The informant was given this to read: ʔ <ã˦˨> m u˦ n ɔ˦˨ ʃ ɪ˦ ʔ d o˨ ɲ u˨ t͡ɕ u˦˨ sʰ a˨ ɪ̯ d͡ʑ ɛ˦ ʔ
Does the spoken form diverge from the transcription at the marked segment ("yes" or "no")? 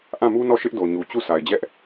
no